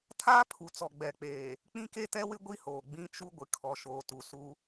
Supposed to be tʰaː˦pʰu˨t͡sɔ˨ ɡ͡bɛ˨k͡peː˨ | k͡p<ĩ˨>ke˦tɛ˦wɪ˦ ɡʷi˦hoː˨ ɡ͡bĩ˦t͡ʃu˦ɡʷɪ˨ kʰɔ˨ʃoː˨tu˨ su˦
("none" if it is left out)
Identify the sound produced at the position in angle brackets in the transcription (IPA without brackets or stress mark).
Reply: ĩ˦